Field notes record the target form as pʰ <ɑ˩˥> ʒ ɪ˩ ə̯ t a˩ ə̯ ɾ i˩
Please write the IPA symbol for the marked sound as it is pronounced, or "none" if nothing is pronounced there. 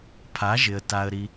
a˩˥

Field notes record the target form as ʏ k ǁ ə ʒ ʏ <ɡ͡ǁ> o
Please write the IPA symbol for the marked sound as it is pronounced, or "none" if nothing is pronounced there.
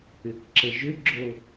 ɡ͡ǁ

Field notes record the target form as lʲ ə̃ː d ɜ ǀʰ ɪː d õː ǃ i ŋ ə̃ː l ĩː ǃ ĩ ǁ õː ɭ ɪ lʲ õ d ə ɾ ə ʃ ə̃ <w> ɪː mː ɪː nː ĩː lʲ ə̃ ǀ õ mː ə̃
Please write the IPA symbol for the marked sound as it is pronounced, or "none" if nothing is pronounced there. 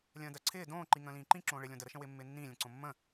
w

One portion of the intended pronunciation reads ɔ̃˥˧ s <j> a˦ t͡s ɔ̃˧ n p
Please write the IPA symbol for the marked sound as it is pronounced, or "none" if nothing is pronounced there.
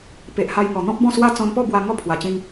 w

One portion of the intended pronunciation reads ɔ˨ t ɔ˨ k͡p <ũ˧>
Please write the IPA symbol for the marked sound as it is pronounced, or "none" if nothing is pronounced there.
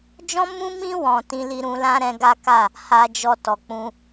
ũ˧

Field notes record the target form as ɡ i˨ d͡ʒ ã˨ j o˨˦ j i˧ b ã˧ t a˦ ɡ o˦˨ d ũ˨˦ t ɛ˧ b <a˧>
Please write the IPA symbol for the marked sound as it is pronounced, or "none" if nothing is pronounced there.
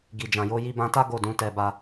a˧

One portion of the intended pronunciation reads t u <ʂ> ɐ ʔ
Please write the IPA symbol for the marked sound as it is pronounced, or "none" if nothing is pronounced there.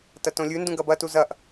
z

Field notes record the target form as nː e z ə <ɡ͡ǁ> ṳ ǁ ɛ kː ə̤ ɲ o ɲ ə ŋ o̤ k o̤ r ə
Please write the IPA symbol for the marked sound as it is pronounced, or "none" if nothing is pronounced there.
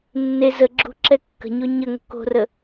ɡ͡ǁ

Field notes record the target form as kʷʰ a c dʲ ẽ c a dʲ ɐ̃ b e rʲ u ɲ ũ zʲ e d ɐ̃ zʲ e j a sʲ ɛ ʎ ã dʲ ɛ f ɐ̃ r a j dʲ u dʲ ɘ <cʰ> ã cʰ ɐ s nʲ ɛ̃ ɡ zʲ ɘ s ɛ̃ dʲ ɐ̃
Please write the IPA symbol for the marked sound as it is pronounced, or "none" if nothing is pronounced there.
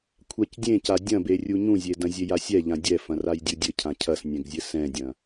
cʰ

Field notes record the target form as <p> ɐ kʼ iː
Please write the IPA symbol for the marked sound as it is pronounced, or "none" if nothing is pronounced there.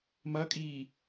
m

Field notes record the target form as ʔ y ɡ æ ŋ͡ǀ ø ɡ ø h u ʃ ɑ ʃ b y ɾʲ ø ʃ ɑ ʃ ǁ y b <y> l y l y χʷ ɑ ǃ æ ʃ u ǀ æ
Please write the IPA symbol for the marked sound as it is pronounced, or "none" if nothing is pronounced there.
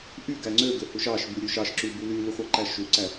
y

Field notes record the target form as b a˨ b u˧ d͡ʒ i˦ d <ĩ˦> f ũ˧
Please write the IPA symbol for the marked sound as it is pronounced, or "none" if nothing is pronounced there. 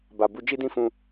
ĩ˦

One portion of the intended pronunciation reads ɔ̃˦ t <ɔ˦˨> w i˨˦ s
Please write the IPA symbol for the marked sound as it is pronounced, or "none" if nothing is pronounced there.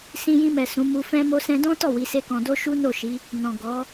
ɔ˦˨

